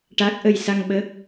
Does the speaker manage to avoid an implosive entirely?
no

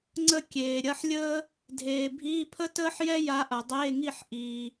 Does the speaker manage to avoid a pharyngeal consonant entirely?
no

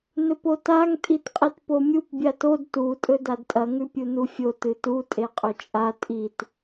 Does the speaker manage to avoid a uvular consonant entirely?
no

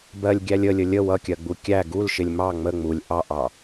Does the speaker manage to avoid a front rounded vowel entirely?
yes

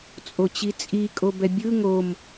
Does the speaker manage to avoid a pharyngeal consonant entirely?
yes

